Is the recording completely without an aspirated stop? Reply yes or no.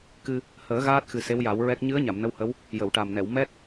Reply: yes